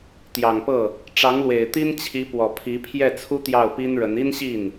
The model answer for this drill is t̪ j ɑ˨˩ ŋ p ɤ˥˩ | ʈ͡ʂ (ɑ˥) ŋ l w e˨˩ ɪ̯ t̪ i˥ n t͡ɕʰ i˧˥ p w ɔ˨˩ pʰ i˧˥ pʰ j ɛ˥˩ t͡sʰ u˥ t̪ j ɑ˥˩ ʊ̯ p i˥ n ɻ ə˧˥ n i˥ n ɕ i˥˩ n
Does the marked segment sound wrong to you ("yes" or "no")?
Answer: yes